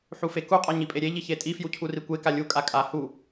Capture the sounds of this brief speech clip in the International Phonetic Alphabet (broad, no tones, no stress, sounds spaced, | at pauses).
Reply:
ħ u f e k u qʼ a ɲ i pʼ e ɾʲ e ʎ i ç e tʼ i f j u cʰ u r i kʷ e k a lʲ u kʼ a kʼ a h u